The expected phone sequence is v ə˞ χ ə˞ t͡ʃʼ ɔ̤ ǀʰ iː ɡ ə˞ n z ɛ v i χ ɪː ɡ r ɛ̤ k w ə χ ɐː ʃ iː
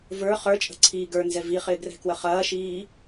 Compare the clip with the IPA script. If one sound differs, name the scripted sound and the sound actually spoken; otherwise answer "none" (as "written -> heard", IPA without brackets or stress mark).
ɔ̤ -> ə̤